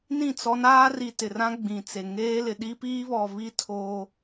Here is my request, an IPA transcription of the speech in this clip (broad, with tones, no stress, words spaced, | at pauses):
nĩ˦˨t͡sɔ˦ naː˦ri˨tɪ˨rã˦ ɡ͡bĩ˨t͡se˨ ŋeː˦lɪ˨ ɗi˦piː˦βɔ˨βi˦ tʰoː˦